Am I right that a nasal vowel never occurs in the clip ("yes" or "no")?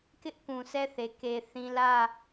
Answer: no